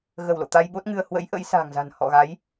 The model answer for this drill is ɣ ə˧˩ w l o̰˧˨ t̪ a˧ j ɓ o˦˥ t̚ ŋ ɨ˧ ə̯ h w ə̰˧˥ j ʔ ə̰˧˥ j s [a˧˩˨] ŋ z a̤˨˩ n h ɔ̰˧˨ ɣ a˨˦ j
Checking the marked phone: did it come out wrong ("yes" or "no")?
yes